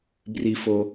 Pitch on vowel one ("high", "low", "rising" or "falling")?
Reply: high